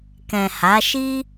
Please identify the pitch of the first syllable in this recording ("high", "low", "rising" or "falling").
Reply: low